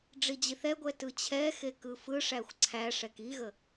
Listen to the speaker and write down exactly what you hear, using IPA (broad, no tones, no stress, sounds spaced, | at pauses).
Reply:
ɖ͡ʐ i d͡ʑ i θ ɛ ɡʷ ɛ t ɯ t͡ɕʰ ɛ x e k ɯ f ɯ ʂ æ xʷ ǀʰ æ ʂ ɛ k i ɣ ə